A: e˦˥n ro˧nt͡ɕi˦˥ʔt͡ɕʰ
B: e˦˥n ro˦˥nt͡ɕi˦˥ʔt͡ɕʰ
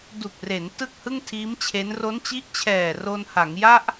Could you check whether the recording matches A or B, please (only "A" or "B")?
B